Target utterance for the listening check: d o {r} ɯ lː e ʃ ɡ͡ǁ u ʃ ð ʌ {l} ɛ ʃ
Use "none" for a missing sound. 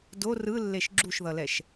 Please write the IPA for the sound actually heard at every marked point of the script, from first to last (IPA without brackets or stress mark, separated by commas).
r, l